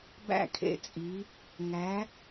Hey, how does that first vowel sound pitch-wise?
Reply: falling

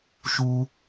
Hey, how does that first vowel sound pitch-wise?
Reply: high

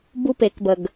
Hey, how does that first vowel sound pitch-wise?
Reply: high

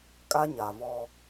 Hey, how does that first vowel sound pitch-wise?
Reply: high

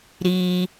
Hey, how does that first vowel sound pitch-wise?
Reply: high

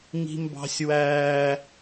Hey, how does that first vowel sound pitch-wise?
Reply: high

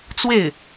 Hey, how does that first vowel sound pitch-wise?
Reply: falling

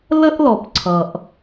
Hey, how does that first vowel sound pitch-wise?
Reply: high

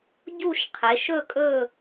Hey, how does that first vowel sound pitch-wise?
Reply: falling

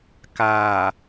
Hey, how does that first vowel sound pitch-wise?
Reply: low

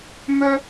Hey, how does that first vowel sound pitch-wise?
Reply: high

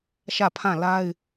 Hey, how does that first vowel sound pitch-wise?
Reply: falling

